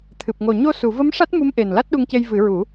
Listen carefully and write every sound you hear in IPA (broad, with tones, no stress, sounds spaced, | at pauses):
t̪ʰ ɨ˨˩ p̚ ŋ o˨˩ ɲ o˧ s u˨˩˨ v ə˧˥ m ʂ a˦˥ t̚ m u˧˥ m ʔ e˨˩ n l a˦˥ t̚ ɗ u˧ ŋ c e˧ j v ɨ˨˩˦ ɹ u˨˩˦